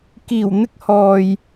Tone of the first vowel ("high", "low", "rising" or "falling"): low